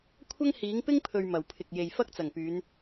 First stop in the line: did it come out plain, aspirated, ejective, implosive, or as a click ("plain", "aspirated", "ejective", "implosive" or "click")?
aspirated